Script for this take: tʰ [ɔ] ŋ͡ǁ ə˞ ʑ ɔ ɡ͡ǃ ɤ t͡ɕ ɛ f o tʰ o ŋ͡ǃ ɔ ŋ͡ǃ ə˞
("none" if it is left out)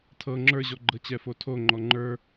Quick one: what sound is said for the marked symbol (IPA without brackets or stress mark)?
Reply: ɤ